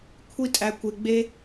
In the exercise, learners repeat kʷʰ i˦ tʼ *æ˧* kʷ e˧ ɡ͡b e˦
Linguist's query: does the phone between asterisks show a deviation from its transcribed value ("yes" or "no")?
no